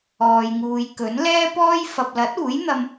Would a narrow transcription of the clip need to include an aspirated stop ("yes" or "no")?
no